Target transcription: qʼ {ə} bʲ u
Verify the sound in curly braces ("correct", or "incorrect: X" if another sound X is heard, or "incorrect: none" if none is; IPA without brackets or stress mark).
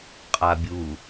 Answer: incorrect: a